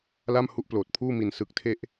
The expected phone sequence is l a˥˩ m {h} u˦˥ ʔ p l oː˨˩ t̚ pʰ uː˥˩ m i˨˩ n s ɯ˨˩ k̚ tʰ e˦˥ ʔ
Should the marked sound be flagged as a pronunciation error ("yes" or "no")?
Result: no